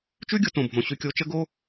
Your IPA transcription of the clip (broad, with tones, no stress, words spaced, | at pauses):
t͡ʃʉ˥ɡʲʊ˧tõ˩bʱõ˩ ɕʉ˧kʲo˧t͡ʃə˥ɡo˥